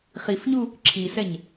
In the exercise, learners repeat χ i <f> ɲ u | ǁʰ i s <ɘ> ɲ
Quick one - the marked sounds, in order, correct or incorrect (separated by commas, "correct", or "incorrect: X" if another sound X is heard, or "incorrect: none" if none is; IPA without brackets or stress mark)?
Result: correct, incorrect: ɛ